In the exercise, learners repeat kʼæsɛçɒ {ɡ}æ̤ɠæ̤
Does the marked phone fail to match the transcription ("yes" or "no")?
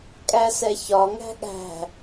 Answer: yes